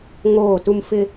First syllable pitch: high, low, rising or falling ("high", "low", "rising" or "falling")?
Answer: falling